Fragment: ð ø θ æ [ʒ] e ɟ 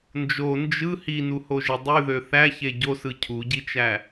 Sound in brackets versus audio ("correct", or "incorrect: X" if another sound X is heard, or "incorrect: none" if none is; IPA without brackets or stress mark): incorrect: ç